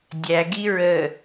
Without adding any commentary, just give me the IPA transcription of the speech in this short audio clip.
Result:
dʲ æ ɡ i ɹ ə

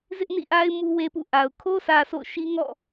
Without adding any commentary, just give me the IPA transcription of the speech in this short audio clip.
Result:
z ɪ˦ ʔ n ḭ˦˨ ʔ a˦ ɪ̯ m u˦ w e˦ p ṵ˦˨ ʔ a˨ ʊ̯ kʰ o˦ s ä˨ s o̰˦˨ ʊ̯ ʃ i˦ ŋ ɔ̰˦˨

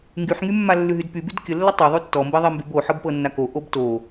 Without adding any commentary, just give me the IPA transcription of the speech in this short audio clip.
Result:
ŋ ɡ y ħ ŋ y mː a lː ʉ ɦ y d p y b y d kʲ ə lː ə tˤ o ðˤ ʉ tː ɔ m b i ðˤ i m b y b o ħ ɤ b p ɤ nː a k o ʔ o b t o

